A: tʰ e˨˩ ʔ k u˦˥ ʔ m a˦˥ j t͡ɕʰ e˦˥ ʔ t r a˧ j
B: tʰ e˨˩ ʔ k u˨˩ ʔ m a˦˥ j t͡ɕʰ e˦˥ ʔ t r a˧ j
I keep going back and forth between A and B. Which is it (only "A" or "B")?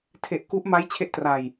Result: A